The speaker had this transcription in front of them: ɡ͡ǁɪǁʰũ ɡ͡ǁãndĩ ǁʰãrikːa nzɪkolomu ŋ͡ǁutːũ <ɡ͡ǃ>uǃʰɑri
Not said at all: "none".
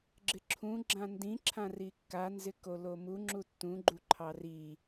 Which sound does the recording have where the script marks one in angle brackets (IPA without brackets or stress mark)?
ɡ͡ǃ